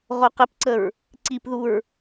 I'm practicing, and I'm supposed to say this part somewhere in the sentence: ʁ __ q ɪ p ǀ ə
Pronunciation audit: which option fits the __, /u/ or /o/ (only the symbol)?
o